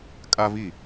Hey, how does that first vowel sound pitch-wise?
high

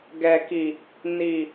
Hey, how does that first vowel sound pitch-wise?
low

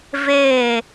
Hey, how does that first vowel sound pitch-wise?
falling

